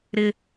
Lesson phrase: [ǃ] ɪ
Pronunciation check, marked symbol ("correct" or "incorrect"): incorrect